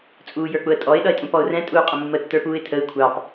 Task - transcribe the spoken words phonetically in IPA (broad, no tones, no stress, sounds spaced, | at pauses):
t͡sʼ uː j ə˞ k͡p ʊ ə̯ tʼ ɔ ɪ̯ ɗ ʌ ɪ̯ tʼ ũ p ɔ ʊ̯ r ɛ̃ tʼ uː qʼ ə mː ə tː ə˞ p uː ɪ̯ tʰ ə ɪ̯ kʷʰ ɑ p